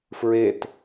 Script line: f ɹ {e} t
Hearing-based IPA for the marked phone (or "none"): e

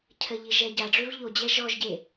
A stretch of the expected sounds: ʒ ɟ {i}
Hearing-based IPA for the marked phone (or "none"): e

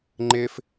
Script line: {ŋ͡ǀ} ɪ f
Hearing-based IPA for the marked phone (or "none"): ŋ͡ǃ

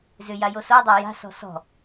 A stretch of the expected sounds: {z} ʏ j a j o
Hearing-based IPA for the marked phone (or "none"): z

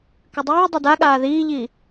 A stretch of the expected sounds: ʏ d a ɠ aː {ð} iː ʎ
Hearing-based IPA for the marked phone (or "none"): ð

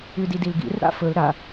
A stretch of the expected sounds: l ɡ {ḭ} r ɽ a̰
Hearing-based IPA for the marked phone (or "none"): ḭ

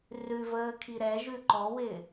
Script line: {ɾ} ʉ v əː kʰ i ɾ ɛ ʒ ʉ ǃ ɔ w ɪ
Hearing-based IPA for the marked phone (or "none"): r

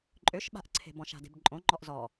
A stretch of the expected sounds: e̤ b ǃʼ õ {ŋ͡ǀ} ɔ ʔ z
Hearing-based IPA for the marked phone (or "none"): ŋ͡ǃ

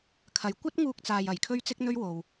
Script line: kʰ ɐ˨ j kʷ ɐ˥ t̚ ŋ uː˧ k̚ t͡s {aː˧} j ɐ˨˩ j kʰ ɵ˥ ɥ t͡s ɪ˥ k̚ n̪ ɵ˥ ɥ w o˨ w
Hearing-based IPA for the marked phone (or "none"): aː˧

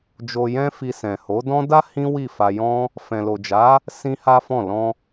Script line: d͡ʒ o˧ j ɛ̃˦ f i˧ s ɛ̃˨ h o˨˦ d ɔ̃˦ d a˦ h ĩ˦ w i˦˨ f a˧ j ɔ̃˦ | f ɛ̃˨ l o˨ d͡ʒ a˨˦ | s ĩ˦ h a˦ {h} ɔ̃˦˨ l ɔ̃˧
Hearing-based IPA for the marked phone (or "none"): f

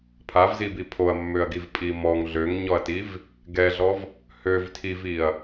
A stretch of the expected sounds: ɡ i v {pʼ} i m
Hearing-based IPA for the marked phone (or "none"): pʼ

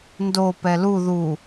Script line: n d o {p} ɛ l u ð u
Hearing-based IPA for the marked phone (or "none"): p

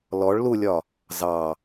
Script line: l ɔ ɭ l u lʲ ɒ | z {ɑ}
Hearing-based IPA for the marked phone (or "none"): ɑ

